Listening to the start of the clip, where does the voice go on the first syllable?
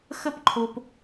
high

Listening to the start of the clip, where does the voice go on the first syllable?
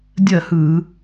falling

